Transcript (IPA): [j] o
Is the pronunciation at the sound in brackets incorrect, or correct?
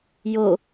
correct